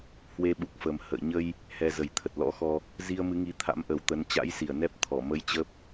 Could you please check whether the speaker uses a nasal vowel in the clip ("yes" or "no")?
no